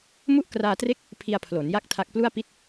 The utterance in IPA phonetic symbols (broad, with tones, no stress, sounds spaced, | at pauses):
m u˥˩ ʔ k r aː˧ t r e˥˩ k̚ | pʰ i˧ a̯ pʰ l o˩˦ n j a˥˩ k̚ tʰ a˦˥ k̚ p l u˥˩ a̯ p i˥˩ t̚